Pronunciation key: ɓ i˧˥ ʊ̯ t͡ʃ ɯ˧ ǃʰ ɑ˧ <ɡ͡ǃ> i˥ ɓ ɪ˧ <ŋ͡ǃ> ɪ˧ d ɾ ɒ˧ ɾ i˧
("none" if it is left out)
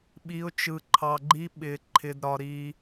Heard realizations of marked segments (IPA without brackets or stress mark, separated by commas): ɡ͡ǃ, ǃʰ